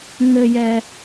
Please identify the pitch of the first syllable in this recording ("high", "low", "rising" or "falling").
low